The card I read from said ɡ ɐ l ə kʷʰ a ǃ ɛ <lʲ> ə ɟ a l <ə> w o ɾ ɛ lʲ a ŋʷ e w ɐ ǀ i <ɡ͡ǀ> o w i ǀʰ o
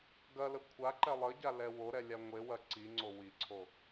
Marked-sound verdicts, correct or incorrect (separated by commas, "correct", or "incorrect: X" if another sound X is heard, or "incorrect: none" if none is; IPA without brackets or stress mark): incorrect: lˠ, incorrect: ɛ, incorrect: ŋ͡ǀ